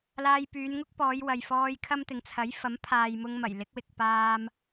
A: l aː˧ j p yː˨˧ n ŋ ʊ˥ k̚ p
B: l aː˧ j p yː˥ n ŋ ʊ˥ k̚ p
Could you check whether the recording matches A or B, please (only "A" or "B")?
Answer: A